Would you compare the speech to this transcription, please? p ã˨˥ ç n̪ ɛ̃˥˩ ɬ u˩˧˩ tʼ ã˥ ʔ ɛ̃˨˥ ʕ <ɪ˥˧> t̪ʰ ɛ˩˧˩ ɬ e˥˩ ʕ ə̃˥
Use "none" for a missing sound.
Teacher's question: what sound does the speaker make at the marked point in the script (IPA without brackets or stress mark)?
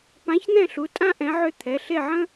ʏ˥˧